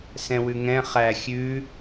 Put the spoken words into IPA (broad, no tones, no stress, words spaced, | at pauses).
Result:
sɛ̃wʉŋɛ̃ χæ xʲʉ